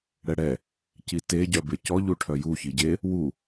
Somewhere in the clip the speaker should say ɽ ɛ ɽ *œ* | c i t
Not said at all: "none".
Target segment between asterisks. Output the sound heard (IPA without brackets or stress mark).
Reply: ɛ